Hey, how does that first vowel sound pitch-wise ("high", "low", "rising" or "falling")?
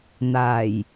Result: low